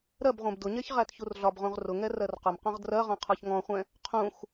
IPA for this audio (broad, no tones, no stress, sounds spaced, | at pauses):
ɾ ɜ b ʁʷ ɛ̃ b d ʊ ɲ ɛ ç ʁ æ t ç u r ɮ ɒ b ʁ ũ ʁ r ʊ ŋ ɛ r ɜ r q ʊ m q ɔ̃ ʁ d r ɜ ʁ ɔ̃ qʰ ɒ ç ŋ ɔ̃ χʷ ɛ̃ | qʰ ũ x